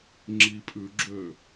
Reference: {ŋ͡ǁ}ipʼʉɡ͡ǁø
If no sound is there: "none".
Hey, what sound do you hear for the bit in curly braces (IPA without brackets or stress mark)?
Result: ŋ͡ǁ